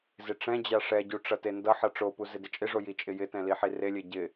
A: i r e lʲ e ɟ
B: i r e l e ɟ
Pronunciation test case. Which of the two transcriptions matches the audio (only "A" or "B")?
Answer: A